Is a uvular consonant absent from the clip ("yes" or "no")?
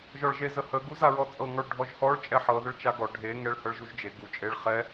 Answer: no